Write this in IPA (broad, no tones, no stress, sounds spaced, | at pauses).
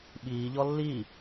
ɓ iː ʎ ɔ lː i